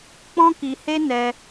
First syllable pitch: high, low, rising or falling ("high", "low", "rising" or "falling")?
high